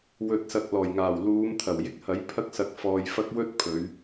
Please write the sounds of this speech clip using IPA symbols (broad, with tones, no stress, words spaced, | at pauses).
wɵ˨t̚sɐ˨k̚ lɔː˨˩jŋaː˨˩wluː˨˧m t̪ʰɐ˨˩wjɪ˧k̚ hɐ˨˥jpʰɐ˥k̚sɐ˧k̚ fɔː˧jfɐ˥k̚ wɵ˥t̚ pʰɵ˨˧ɥ